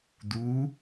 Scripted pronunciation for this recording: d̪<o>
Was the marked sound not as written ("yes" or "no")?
yes